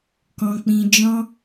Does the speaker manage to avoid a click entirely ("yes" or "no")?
yes